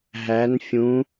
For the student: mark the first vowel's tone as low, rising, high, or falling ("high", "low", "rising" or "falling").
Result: rising